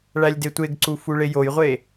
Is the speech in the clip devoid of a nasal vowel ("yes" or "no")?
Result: yes